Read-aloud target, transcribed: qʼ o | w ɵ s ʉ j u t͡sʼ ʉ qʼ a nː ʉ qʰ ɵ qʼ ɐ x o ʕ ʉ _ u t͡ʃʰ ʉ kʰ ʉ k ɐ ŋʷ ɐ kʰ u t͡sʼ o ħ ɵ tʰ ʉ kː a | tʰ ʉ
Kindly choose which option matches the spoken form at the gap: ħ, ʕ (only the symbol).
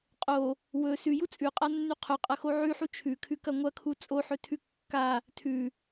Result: ħ